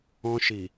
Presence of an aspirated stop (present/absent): absent